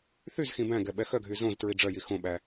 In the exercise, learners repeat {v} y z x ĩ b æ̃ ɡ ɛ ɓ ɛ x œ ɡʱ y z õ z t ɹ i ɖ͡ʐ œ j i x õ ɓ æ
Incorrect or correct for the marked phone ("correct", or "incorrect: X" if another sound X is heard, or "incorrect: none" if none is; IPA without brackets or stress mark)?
incorrect: θ